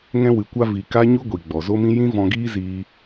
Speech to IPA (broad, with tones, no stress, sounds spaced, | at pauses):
ŋ ɛ̃˧ w ɨ˨ kʷ a˧ v i˨ k a˦ ɲ u˦ ɡʷ i˨ ɡ͡b ɔ˨ z o˦ m ĩ˦ j ĩ˦ v ɔ̃˧ ɡ iː˦ z iː˧